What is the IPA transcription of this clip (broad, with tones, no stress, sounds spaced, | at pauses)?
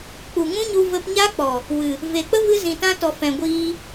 k͡p u˨ ŋ ũ˦ ɲ u˧ v ə˧ p ɲ a˦ k͡p ɔ˨ | w ɨ˨ | v e˨ k͡p ə˦ v ɨ˦ z ĩ˨ t ã˦ t ɔ˨ f ɛ̃˨ ɡʷ iː˧